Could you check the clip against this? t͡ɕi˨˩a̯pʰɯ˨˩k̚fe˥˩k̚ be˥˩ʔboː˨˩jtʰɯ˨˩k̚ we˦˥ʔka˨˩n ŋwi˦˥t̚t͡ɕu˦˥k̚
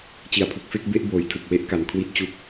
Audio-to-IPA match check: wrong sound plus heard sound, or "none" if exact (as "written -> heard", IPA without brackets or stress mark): ŋ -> kʰ